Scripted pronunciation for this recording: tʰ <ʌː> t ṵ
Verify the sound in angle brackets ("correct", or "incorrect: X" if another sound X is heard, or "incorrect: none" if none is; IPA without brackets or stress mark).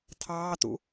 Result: incorrect: ɑː